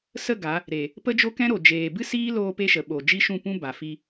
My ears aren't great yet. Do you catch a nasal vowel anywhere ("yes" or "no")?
yes